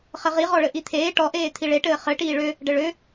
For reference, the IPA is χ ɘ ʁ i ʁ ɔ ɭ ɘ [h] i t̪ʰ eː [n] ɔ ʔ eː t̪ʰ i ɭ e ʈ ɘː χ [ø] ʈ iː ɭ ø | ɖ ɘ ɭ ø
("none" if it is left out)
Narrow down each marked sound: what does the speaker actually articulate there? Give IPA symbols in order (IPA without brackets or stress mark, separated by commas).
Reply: ʔ, ʈ, ɘ